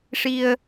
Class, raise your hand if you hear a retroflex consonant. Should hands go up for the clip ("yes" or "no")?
yes